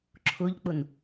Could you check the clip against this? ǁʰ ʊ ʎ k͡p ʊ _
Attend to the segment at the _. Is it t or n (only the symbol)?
n